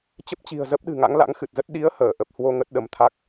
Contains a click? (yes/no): no